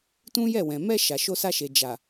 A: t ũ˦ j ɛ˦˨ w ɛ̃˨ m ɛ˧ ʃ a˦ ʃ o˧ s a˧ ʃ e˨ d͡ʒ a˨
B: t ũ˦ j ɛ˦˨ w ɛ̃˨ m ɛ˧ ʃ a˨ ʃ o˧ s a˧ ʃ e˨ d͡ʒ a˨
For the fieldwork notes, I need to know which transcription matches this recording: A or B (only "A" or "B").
B